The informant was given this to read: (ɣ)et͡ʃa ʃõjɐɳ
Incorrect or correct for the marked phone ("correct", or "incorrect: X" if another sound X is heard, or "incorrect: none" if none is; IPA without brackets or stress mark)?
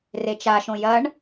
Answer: incorrect: r